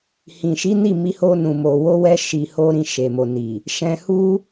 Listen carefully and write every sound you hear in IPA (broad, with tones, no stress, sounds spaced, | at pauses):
h ĩ˨ ʃ i˨˦ n i˦˨ m i˧ h o˧ n ũ˨ m o˨ w o˧ w ɛ˧ ʃ i˧ h o˦ ɾ ĩ˧ ʃ e˨ m o˨ n i˨ | ʃ ɛ̃˧ h u˦